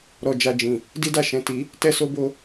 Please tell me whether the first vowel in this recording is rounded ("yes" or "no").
yes